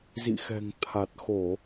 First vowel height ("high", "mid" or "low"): high